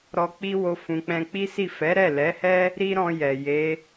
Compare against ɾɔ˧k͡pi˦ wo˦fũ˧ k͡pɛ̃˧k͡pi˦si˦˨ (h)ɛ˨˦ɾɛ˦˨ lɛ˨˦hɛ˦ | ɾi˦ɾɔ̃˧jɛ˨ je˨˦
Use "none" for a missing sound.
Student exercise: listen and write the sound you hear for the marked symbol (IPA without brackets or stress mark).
f